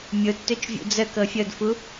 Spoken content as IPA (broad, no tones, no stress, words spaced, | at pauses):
mʲotːøt͡ʃvʲṵ d͡zəkɤ fʲɤdfu